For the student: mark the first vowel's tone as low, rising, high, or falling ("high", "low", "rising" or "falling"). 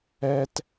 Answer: high